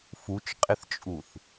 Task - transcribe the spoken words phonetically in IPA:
fut͡ʃqʼɪθt͡ʃʼuθ

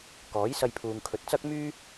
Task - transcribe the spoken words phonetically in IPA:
kɔː˨˥jsɐ˧jpʰuː˨ŋkʰɵ˨t̚ t͡sɐ˥k̚myː˥

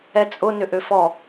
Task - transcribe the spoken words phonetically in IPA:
ɛt͡sʼʊ nʏʔøfɔ

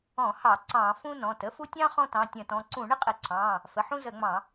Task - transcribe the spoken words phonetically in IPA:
ɔ̃˧˩˧hɑ˧˩˧ ǀɑ̃˧˩˧ fũ˥nɔ̃˩˧˩t ə˥fu˥ tʲɑ̃˥ χɔ̃˥tɑ̃˩˧˩tʲə̃˧˩˧tɔ̃˩˧˩ ǀũ˧˩˧ɳə˥qʼə˧˩˧ǀʰɑ̃˩˧˩ | fə˩˧˩ħũ˥ zə˧˩˧ŋ͡mɑ̃˧˩˧

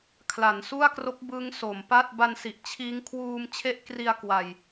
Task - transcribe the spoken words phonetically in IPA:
kʰla˩˦nsu˥˩a̯kro˦˥k̚ bɯ˦˥ŋ so˩˦mpa˥˩t̚ ba˧nsi˨˩ʔ t͡ɕʰiː˦˥ŋ kʰwuː˧mt͡ɕʰe˦˥ʔkri˧a̯ kwa˧j

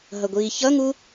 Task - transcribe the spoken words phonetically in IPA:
ɦʌɡʷiːçʌŋu

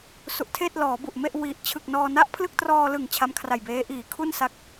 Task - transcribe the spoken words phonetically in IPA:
su˨˩ʔtʰeː˥˩t̚ lɔː˩˦bu˨˩ʔme˥˩ʔ wi˨˩ʔ t͡ɕʰɯ˨˩k̚nɔː˧na˥˩ʔ pʰlɯ˥˩k̚trɔː˧lɯ˨˩ŋ t͡ɕʰa˦˥mkʰra˨˩jbeː˦˥ ʔiː˨˩kʰu˥˩nsa˦˥k̚

